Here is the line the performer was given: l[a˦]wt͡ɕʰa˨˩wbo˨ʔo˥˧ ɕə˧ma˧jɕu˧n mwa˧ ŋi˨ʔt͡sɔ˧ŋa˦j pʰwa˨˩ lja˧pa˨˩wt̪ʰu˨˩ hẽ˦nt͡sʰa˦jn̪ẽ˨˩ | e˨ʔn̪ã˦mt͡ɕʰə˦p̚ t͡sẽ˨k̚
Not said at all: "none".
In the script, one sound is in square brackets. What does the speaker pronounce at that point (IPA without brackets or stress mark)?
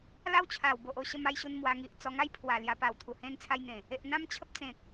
a˦